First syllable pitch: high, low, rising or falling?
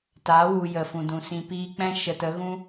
rising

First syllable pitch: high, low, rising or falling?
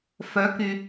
rising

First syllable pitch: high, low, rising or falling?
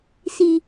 low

